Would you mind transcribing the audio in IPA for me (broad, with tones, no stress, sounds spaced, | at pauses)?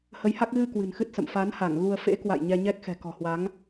h ə˨˦ j h a˦˥ k̚ ɣ ɨ˧ k w ɨ̤˨˩ n x ɨ˦˥ t̚ s ə̰˧˨ m f a˨˦ n h a˧˩ ŋ ɣ u˧ ə̯ f ḛ˧˥ k w a̰˧˨ j ɲ ɛ˧ ɲ ɛ˦˥ k̚ x ɛ̤˨˩ k ɔ̤˨˩ h w a˨˦ ŋ